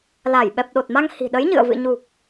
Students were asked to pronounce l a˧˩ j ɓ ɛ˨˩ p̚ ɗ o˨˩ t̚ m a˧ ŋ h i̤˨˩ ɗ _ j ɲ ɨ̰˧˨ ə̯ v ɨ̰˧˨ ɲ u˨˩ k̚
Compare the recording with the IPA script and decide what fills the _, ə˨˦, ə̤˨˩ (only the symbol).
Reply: ə˨˦